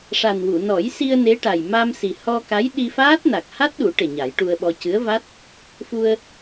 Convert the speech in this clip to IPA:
ʂ a˨˩ n w u˨˩˨ n ɔ˨˩˦ j s i˧ ə̯ n e˧˥ ʈ a˨˩ j m a˧ m s i˨˩ h ɔ˧ k a˧˥ j ɗ i˧ f aː˦˥ t̚ n a˨˩ k̚ h a˦˥ t̚ ɗ u˨˩˦ ʈ e˨˩ ɲ a˨˩˦ j ʈ u˧ ə̯ ɓ ɔ˧ c ɨ˧˥ ə̯ v a˦˥ t̚ | f u˧ ə̯

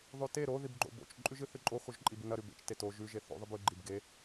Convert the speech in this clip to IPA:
ðˤ ʉ t e ɾ o ð i b ɡ͡ǃ o̰ b o̰ t͡ʃ ǃʼ ʉ ʒ ɨ θ ɨ ǃʼ o x o ʒ ǃʼ i b ɨ n ɐ ɾ ʉ b ḛ t͡ʃ t e t o ʒ ʉ ʒ e θ o̰ ðˤ ɨ b ʉ ɡ͡ǃ i b ɡ e

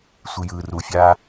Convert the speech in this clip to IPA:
sʷ ɨ j ɯː r u fʲ aː

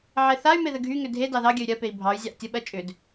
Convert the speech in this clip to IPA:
ʕ e θ a y̯ m e ð ə ɡʱ y ŋ ʏ dʱ e d ɑ ð ɑ ɡʲ ə y̯ ɾʲ ɜ p e i̯ bʱ ɑ y̯ zʲ ɑ ʔ tʲ ə ɓ ɜ t͡ʃʼ ʏ d

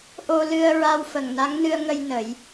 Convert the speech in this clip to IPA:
ʔ o˧ l ɨ˧ ə̯ ɹ a˧ w f ə˨˩ ŋ n a˧˥ ŋ n ɨ˧ ə̯ ŋ ə˧ j n ə˨˩˦ j

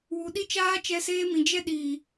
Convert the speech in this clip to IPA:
w u˨ ɗ i˧ t͡ʃ aː˧ t͡ʃ ɛ˧ s eː˧ m ĩ˨ d͡ʒ ɛ˧ ɗ iː˨

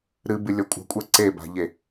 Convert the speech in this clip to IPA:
ɾ ɨ b ɨ lʲ ɔ kʷʼ a̤ kʷʼ ɛ ǀ e b a̤ ʎ e

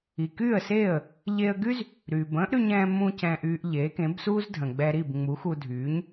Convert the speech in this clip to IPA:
i˩ k yː˥˩ ə̯ s eː˥˩ ə̯ | ʎ e˧ ə̯ ɡ y˥ z | ɾ yː˩ b ə̃ː˥ ʔ ɾ y˧ ɲ ɛ̃ː˧ m ũ˧ c ɛ̃ː˧ ʔ yː˧ ʔ ʎ e˩˥ k ẽ˩˥ b s uː˥ z dʱ ə̃˩ ɡ͡b ɛ˧ ɾ i˥˩ b ŋ͡m u˩˥ x u˧ dʱ yː˩˥ ɲ

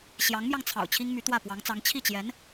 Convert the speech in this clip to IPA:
ɕ j ɑ˧˥ ŋ m j ɑ˧ ŋ t͡sʰ ɑ̰˨˩ ʊ̯ t͡ɕʰ i˥ ŋ m y˧˥ t̪ w ä˥˩ p w ɑ˧˥ ŋ t͡s ɑ˧˥ ŋ t͡ɕʰ i˥˩ t͡ɕ j ɛ˧˥ n

